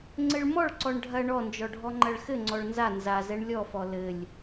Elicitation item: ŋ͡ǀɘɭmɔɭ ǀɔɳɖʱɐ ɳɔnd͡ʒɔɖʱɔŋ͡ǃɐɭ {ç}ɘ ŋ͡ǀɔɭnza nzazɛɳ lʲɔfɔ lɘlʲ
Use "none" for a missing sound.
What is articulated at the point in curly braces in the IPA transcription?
x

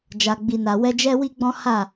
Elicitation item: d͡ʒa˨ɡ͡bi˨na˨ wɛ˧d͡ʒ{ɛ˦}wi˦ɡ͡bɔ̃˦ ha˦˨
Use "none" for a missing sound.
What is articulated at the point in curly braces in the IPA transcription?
ɛ˦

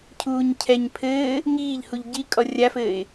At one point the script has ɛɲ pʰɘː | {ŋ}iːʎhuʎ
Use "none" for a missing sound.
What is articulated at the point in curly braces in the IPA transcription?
ŋ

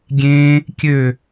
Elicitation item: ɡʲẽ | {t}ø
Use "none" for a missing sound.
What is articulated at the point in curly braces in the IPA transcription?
kʲ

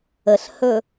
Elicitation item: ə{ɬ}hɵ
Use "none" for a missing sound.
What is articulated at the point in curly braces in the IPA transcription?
ɬ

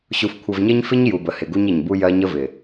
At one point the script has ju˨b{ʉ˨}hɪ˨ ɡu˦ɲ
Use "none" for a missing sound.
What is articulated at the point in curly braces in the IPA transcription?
ə˨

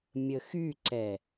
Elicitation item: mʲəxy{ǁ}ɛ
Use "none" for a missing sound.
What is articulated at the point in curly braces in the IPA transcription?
ǀ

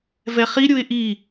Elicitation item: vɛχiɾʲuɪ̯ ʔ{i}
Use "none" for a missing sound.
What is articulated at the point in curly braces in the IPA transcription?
i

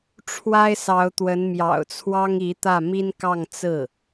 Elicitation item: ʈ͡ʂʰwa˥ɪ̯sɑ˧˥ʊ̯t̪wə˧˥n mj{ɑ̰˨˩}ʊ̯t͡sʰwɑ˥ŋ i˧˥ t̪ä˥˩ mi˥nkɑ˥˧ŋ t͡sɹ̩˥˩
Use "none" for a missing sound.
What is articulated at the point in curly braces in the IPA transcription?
ɑ̰˨˩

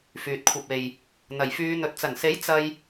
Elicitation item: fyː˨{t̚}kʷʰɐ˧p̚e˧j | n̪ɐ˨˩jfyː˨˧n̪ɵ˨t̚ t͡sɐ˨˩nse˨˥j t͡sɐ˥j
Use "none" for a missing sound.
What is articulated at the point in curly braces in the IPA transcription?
t̚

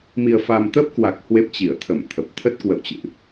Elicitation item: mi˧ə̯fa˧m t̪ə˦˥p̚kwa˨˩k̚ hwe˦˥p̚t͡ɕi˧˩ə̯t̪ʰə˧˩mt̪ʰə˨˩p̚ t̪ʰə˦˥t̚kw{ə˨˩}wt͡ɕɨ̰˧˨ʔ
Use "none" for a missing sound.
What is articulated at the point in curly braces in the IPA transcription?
ə̰˧˨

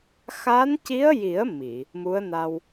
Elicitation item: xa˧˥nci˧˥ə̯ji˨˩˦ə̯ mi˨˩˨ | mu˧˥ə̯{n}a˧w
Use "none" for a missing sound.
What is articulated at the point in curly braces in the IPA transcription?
n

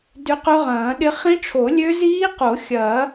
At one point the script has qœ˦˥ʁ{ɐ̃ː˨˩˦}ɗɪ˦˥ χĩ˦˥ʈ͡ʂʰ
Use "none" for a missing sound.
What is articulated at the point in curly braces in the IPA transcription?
ɐ̃ː˨˩˦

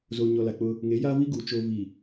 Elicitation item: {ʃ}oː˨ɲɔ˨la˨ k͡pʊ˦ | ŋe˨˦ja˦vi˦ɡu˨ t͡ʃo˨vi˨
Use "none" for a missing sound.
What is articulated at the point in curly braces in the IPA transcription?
z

